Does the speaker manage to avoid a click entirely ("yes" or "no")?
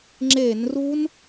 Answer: no